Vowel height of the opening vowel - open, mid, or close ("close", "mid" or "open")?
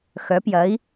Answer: mid